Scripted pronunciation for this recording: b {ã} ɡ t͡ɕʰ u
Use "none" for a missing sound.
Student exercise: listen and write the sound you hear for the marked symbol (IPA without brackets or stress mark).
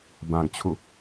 ã